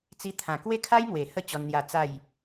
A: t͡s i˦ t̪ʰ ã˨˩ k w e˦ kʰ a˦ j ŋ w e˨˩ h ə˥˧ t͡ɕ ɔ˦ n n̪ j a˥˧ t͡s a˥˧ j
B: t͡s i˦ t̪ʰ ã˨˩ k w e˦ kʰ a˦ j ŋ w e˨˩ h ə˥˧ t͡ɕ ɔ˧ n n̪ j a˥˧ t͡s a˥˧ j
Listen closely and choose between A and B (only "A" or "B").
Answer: A